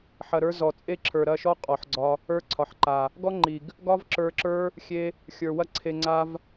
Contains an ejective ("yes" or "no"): yes